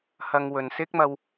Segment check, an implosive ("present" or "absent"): absent